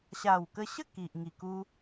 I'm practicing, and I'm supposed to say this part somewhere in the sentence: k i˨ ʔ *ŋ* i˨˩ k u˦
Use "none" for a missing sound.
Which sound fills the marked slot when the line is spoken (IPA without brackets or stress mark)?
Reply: ŋ